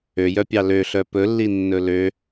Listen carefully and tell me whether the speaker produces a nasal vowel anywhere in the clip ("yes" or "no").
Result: no